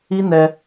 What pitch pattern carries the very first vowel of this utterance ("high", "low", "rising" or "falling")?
high